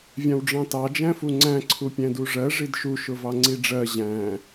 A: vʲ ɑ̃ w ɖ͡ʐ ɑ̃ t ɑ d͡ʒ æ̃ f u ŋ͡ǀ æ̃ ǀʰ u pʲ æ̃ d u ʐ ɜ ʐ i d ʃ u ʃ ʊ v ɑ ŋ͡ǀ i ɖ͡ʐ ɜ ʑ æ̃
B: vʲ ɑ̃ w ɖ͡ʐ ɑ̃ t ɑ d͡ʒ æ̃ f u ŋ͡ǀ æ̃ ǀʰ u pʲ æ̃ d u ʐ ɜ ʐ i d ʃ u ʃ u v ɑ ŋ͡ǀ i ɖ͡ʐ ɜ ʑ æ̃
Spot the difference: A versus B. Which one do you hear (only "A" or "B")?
A